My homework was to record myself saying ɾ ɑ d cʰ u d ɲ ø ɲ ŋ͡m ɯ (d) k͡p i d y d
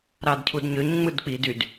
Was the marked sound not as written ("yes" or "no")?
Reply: no